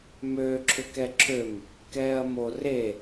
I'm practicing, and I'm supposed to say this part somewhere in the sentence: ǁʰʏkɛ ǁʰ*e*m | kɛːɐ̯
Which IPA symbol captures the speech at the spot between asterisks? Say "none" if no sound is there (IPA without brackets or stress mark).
ø